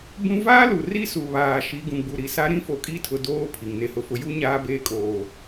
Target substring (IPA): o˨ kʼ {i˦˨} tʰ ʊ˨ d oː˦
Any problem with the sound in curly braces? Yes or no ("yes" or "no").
no